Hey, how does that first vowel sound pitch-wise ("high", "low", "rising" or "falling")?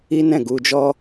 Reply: high